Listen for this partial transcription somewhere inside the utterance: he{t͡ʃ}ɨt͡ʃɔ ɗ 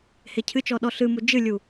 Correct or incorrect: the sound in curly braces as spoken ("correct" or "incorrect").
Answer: incorrect